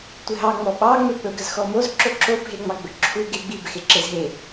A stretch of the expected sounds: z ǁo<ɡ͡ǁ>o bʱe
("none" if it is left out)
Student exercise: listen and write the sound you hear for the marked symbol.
ǁ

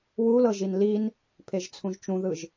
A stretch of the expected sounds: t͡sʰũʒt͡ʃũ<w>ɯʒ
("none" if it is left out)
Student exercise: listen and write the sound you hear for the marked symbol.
ð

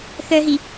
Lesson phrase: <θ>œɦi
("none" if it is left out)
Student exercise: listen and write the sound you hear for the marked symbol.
θ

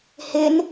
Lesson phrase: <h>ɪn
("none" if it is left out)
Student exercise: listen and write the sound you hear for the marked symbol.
h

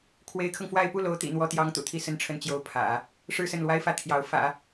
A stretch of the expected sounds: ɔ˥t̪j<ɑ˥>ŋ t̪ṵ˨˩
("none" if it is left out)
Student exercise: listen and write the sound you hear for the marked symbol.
ɑ˥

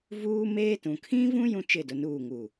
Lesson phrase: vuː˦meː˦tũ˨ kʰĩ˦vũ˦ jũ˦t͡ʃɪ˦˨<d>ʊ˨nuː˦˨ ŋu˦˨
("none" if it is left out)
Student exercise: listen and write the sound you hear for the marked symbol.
d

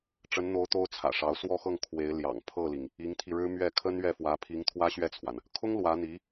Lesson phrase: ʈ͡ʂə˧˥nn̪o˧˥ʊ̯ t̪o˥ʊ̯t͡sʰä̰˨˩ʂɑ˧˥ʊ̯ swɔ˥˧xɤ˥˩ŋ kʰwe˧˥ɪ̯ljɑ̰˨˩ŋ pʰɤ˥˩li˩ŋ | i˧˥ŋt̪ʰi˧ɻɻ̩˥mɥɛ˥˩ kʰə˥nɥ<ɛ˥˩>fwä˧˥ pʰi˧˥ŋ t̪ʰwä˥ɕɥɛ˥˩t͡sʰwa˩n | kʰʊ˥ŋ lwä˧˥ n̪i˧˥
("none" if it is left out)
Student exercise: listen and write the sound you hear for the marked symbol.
ɛ˥˩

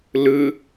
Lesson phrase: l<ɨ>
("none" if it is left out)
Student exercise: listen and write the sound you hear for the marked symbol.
ɨ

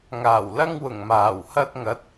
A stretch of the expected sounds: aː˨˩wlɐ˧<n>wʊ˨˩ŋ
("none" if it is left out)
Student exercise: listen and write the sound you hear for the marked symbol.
ŋ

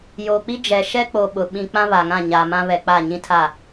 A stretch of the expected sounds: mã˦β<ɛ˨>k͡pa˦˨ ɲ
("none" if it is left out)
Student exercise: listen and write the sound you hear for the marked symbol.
ɛ˨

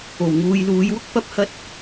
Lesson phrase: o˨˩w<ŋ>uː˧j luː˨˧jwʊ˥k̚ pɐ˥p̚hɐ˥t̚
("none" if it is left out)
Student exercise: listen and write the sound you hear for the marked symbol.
ŋ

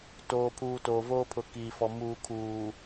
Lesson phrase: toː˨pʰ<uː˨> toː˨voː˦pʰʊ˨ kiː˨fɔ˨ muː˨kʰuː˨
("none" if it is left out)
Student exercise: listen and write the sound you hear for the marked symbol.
uː˨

